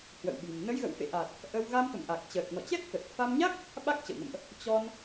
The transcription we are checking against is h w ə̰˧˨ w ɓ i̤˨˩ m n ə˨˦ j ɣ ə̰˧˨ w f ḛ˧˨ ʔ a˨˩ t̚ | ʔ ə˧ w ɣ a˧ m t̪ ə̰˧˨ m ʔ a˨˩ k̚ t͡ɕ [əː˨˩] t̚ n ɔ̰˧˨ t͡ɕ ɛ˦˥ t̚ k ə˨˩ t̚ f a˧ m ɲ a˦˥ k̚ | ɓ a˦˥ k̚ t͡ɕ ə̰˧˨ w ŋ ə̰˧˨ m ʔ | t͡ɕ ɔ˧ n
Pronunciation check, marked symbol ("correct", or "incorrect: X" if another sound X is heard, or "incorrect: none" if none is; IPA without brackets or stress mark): correct